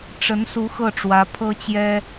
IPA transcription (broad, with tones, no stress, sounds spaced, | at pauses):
ʈ͡ʂ ə˧˥ n s u˧˥ x ɤ˥˩ ʈ͡ʂ w ä˧˥ pʰ ɤ˥ t͡ɕ j ɛ˥